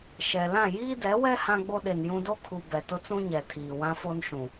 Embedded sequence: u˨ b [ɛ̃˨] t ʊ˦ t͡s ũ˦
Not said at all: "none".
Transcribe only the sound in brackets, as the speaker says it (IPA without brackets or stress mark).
ɛ˨